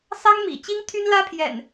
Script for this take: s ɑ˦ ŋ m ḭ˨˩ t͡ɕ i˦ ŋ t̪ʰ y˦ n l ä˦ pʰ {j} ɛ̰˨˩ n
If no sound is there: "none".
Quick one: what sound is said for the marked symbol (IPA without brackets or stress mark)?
j